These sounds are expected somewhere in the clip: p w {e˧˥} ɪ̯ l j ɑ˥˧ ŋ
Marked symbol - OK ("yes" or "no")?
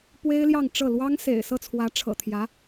no